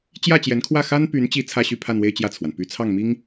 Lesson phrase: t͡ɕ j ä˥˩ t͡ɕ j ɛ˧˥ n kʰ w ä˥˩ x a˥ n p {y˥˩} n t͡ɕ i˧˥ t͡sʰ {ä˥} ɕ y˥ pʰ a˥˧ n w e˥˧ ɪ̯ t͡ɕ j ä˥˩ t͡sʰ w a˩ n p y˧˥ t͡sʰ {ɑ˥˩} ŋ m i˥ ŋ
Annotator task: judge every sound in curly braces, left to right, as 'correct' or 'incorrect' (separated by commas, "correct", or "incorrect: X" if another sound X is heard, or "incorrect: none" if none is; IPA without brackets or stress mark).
incorrect: y˧˥, correct, correct